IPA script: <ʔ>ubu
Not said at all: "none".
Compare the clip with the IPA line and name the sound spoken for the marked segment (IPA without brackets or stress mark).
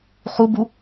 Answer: χ